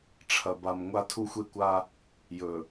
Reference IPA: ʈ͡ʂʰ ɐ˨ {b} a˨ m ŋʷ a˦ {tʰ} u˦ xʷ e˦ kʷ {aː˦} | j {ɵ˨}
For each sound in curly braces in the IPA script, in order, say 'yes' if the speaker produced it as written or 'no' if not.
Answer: yes, yes, no, yes

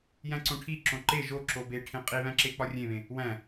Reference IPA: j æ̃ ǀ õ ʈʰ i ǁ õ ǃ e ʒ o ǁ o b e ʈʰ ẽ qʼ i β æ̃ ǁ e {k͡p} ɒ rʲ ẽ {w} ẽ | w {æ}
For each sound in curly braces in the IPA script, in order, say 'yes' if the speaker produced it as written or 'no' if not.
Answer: yes, no, no

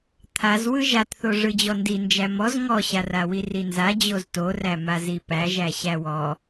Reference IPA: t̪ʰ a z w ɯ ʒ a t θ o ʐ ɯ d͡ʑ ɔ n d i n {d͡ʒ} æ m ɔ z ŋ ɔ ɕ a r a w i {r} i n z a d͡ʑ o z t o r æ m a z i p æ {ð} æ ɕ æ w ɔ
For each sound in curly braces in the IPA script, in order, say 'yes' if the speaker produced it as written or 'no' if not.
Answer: yes, yes, no

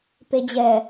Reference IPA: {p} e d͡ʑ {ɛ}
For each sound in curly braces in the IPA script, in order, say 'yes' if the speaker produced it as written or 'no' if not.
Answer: yes, yes

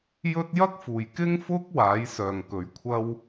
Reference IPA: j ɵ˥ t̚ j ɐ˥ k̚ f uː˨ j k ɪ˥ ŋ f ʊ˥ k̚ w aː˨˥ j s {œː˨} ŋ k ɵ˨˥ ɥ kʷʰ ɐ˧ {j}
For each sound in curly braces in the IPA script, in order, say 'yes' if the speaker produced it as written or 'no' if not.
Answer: yes, no

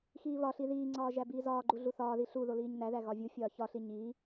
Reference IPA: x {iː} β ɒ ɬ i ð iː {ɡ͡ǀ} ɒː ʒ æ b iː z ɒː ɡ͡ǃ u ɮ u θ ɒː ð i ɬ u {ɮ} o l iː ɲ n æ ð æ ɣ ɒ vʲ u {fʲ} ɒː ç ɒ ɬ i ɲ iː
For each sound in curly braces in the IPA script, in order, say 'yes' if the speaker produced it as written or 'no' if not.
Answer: yes, no, no, yes

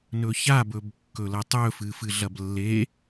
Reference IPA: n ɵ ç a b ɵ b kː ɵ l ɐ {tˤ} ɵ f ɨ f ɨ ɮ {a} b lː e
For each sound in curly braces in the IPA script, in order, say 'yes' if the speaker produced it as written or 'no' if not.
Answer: yes, no

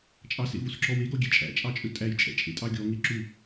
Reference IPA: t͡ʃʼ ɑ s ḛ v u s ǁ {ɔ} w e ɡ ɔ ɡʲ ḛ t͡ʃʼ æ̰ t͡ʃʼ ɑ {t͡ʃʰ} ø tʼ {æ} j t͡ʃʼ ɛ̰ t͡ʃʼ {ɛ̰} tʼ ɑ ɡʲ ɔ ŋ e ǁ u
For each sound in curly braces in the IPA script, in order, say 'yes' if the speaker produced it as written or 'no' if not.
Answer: yes, no, yes, no

